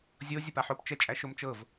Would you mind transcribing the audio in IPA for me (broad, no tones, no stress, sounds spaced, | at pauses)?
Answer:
zʲ o zʲ ə p a ħ o p t͡ʃ ɛ t͡ʃʼ æ ʃ o m t͡ʃ ɤ v